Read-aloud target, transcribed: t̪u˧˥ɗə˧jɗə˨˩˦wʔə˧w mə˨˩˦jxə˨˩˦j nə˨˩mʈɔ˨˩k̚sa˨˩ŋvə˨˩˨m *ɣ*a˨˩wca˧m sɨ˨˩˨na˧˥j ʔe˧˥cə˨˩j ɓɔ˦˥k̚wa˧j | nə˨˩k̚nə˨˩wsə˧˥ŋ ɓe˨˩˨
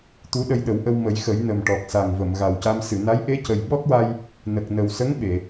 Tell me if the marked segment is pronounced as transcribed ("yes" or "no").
yes